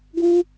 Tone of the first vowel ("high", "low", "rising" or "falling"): high